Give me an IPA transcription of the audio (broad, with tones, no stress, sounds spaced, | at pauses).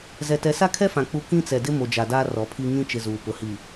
z ɛ˨ t ɛ˨ s a˦ kʰ ɛ˦ f ã˨ k͡p u˦ k ĩ˦ t͡s ɛ˨ d ɪ˦ m o˨ d͡ʒ a˨ d aː˦ r ɔ˨˦ pʰ i˦ ŋ ĩ˦ t͡ʃ ɪ˦ z uː˨ p ʊ˨ h i˨